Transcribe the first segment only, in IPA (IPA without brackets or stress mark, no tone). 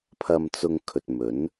pʰ